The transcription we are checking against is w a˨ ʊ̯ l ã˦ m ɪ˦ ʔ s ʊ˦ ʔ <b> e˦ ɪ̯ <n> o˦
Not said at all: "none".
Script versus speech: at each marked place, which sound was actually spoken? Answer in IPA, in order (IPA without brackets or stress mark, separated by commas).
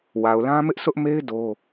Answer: m, d